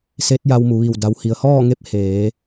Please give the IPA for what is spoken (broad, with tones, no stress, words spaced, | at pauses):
se˧˥t̚ja˧w mu˩ʋi˧˩w da˩whi˩ə̯hɔː˥˨ŋe˧˥p̚ heː˩˧